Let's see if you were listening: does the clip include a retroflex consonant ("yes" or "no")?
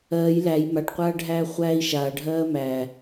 yes